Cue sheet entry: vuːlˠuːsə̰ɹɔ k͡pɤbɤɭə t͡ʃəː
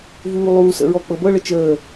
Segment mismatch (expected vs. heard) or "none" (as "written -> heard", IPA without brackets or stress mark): none